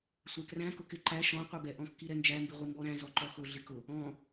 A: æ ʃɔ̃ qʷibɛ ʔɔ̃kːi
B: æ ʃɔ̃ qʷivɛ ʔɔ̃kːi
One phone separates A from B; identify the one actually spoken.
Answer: A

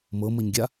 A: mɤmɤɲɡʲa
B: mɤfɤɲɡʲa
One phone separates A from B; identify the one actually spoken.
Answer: A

